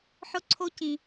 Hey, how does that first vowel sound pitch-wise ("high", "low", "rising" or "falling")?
high